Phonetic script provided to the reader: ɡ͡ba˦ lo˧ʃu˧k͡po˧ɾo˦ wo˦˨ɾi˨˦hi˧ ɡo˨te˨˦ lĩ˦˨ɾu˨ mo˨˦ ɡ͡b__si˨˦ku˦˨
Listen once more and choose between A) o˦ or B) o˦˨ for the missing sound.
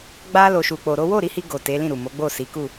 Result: B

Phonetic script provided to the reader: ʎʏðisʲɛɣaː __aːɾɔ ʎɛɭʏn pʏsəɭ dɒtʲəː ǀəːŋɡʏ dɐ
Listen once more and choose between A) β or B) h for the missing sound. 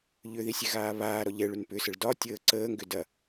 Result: A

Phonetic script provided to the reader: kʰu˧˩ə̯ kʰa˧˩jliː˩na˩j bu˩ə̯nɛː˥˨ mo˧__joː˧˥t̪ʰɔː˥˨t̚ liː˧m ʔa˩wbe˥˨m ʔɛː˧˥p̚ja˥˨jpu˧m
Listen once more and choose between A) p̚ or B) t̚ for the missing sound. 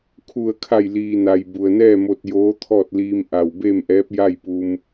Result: B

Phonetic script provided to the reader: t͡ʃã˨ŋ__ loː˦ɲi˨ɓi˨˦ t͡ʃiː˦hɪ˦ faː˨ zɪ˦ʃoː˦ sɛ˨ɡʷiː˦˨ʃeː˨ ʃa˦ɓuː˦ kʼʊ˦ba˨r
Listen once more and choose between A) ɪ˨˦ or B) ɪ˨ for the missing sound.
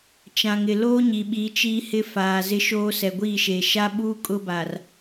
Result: B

